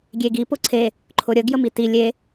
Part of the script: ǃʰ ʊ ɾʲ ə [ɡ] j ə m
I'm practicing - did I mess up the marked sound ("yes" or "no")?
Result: no